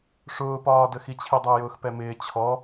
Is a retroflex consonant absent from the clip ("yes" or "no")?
no